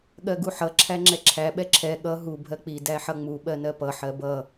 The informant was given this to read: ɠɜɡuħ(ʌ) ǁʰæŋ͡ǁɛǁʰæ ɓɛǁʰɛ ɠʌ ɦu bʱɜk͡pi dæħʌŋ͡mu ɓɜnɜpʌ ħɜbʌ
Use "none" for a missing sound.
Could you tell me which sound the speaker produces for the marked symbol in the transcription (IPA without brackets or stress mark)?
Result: ʌ